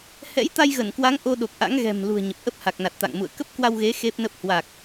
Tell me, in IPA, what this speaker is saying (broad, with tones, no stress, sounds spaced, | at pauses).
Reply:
h ɛ̰˧˥ j t̪ a˧ j ɣ ə˧˩ n k w a˨˦ ŋ ʔ o˧ ɗ o˨˩ k̚ ʔ a̰˧˥ ŋ ɣ ɛ̤˨˩ m l ṳ˨˩ ə̯ ɲ ə˨˩ p̚ ʔ ə˦˥ p̚ h a˨˩ k̚ n a˨˩ t̚ t̪ a̰˧˨ ŋ m ṵ˧˨ ə̯ k ə˦˥ p̚ k w a˧ w ɣ e˨˦ x e˦˥ p̚ n ə˦˥ p̚ h w a˨˩ k̚